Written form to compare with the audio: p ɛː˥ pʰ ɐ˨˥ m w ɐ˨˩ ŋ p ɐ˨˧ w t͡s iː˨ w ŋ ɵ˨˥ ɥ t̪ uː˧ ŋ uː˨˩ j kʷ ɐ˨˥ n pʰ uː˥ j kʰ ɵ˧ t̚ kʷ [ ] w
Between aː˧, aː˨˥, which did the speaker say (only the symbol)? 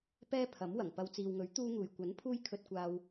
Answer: aː˧